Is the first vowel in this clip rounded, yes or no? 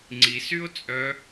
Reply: no